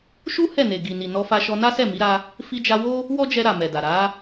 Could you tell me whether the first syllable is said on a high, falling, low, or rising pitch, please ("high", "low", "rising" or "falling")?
high